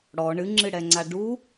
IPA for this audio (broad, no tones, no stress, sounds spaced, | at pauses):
ɽ ɔ ɳ ɨ ŋ͡ǁ ɨ ɽ ɛ ŋ͡ǀ a ɖ u